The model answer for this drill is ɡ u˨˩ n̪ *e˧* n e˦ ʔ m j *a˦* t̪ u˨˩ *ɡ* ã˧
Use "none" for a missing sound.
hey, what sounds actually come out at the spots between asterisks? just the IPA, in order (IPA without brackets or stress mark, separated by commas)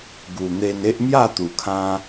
e˧, a˥˧, kʰ